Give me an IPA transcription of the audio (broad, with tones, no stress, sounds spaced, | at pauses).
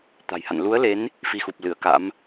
t̪ a̤˨˩ j h a̰˧˨ n l u˨˦ ə̯ l e˨˦ n | f i˧ x u˨˩ p̚ l ɨ˧˩ ə̯ k a̰˧˥ m